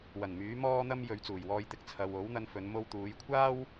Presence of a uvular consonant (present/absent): absent